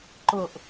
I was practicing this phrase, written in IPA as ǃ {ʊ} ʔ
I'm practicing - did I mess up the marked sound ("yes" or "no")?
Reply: no